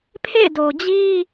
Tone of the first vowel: falling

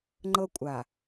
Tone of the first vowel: high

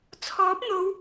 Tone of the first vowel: rising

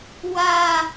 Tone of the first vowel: high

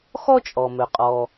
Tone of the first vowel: high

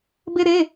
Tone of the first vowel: high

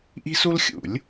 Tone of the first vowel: high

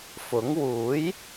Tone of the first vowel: rising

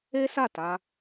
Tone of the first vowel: high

